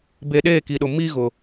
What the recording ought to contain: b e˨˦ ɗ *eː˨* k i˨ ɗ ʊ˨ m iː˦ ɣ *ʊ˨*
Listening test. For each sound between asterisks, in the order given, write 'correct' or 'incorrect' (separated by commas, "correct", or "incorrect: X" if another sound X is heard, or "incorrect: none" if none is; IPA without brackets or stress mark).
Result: incorrect: eː˦˨, correct